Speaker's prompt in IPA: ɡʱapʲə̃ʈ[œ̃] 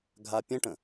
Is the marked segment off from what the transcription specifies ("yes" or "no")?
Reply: yes